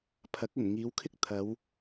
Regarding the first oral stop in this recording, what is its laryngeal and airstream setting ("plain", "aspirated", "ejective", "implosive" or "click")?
aspirated